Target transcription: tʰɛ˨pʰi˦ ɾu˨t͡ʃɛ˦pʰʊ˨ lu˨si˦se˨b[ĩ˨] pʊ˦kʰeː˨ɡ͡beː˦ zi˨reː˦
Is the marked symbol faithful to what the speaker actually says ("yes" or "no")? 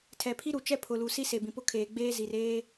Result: yes